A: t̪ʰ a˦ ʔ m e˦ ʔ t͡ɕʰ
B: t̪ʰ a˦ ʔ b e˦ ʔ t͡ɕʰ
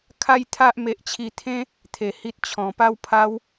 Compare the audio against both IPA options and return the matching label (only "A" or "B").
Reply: A